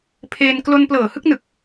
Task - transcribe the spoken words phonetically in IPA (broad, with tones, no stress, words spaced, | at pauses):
pʰeː˧n klo˧nplɤː˨˩hɯ˥˩k̚nɯ˨˩k̚